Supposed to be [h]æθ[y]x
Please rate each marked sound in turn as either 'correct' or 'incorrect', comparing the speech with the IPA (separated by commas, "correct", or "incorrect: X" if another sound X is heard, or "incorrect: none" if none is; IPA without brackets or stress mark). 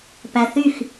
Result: incorrect: p, correct